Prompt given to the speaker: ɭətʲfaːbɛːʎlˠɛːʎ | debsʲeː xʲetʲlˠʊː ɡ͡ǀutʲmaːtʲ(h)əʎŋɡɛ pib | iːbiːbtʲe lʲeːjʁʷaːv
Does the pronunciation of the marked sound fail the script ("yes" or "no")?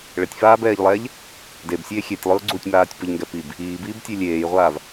yes